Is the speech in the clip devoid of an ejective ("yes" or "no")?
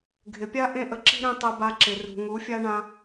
yes